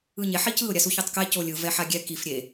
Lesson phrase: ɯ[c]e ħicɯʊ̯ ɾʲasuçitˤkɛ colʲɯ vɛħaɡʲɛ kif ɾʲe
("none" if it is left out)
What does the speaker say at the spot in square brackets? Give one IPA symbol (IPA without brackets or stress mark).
ɲ